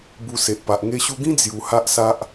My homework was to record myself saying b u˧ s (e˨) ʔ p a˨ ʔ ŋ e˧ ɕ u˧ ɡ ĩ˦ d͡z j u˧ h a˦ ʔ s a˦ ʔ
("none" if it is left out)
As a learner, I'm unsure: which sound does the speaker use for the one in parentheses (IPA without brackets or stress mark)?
e˨